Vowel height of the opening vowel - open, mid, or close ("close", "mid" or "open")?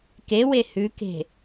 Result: mid